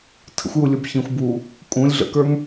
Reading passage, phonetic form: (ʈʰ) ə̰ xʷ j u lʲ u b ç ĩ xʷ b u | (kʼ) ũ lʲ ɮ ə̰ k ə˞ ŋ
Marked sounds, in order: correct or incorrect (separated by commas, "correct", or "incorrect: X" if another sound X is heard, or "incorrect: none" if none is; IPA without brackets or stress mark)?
incorrect: tʰ, correct